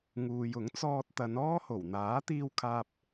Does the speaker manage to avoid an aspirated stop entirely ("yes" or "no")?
no